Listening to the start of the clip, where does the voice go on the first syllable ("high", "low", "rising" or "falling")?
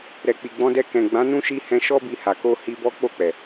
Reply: low